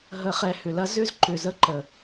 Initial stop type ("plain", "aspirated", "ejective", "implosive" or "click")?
click